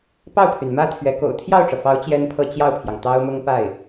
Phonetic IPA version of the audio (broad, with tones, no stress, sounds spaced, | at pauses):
p ɑ˥˩ ʊ̯ pʰ y˩ n m ä˥ t̪ʰ ɥ ɛ˧˥ k o̰˨˩ ʊ̯ t̪ʰ j ɑ˥˩ ʊ̯ ʈ͡ʂ ɤ˩ f ɑ˧˥ ʊ̯ t͡ɕ j ɛ˥ n pʰ ɤ˥˧ t͡ɕ j ɑ˥˩ ʊ̯ pʰ j ɑ˩ ŋ t̪ ɑ˥ ʊ̯ m ʊ˥ ŋ p a˥˩ ɪ̯